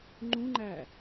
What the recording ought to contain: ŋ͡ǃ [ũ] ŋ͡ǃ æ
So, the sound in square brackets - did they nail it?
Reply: yes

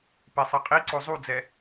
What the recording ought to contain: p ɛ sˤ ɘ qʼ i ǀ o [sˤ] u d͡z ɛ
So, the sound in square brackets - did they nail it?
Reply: no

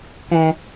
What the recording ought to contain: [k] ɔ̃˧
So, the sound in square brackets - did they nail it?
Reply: yes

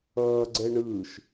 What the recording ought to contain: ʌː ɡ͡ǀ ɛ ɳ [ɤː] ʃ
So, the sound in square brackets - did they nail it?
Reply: no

